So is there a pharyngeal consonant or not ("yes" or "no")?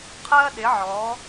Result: yes